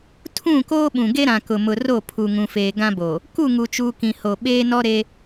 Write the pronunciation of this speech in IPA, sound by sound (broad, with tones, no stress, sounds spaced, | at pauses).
tʰ ũ˦˨ k oː˦ ɓ ũ˨ ɡ e˦ ɾ ã˨ k ʊ˨ m ʊ˨ r o˦˨ pʰ u˨ ŋ ũ˨ f eː˨ ɡ ã˦ b o˨ | k u˦˨ ŋ u˨ t͡ʃ uː˨ k ĩ˨ h o˨ ɓ eː˦ n ɔ˦ ɾ e˦